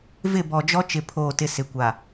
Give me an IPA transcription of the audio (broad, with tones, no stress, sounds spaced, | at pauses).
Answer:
v ɪ˦˨ b ɔ˨ d͡ʒ ɔ˦ t͡ʃ ɪ˦˨ pʰ oː˦˨ t ɪ˦ s ɪ˨ kʷ a˨